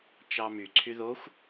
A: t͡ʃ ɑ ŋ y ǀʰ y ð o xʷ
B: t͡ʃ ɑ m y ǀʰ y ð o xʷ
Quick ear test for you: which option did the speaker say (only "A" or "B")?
B